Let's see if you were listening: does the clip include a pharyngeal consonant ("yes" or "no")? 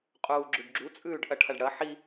yes